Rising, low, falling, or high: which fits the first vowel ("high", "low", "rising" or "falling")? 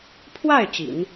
falling